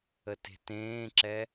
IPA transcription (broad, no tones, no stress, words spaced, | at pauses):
əte̤tẽːǁɛ